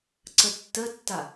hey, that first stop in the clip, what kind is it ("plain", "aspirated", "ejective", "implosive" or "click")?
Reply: click